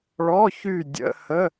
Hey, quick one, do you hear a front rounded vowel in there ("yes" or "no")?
yes